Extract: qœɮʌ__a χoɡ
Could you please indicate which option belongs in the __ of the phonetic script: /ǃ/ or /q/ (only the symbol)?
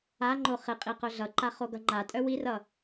ǃ